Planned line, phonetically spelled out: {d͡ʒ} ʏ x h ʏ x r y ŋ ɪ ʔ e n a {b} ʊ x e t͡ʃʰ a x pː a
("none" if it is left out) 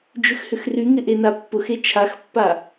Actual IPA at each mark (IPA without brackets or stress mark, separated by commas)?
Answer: d͡ʒ, pː